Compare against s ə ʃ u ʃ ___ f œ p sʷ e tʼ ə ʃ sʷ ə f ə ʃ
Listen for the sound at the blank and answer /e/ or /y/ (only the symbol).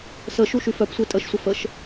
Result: y